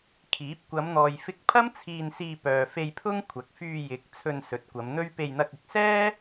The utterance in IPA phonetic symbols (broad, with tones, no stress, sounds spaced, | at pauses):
kʰ iː˨˥ p̚ kʷ ɐ˨˧ m n̪ ɔː˨ j f ɪ˧ k̚ pʰ ɐ˥ m t͡sʰ iː˧ n s iː˧ p œː˨ f e˧ j pʰ ʊ˥ ŋ kʷʰ ɐ˨ k̚ f yː˧ j ɪ˨˥ k̚ t͡sʰ ɵ˧ n s ɵ˨˥ t̚ kʷ ɐ˨˧ m n̪ ɵ˥ ɥ p e˧ j n̪ ɐ˧ k̚ ɪ˨˥ k̚ s ɛː˥